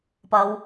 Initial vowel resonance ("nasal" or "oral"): oral